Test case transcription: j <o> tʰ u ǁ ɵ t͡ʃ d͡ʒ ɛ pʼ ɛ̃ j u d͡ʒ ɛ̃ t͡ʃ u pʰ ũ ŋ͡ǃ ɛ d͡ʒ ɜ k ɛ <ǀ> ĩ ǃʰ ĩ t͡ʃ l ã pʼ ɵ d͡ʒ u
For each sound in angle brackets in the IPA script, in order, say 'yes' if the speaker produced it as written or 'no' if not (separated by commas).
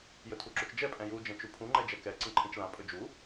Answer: no, yes